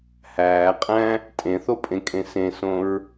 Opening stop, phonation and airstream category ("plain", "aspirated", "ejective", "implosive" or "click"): ejective